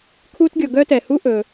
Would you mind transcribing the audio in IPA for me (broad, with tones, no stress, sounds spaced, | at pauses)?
kʰ u˥ t ɡʲ ɔ˨ ɡ œ˥ t ɛ˩ h u˦ ʔ ɵ˩